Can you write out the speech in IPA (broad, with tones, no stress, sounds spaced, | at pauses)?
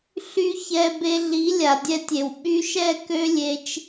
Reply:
ɬ y˦ ç ɛ˧ b e˧ ɮ i˨˦ lʲ a˨ dʲ ɛ˧ tʲ e˨ w ɓ y˧ ʃ ɛ˦˨ k ø˦ lʲ e˧ t͡ʃ